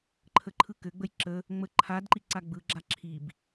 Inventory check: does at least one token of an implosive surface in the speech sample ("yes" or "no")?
no